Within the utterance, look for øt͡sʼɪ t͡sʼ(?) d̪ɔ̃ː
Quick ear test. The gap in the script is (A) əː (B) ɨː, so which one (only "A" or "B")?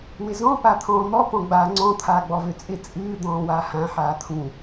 B